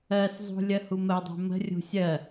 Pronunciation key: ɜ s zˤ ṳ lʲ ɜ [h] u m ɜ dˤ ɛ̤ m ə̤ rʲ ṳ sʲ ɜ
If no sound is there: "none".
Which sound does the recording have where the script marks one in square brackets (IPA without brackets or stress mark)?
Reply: h